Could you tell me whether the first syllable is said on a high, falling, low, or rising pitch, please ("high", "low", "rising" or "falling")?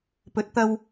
rising